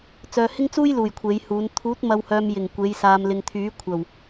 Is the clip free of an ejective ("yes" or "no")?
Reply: yes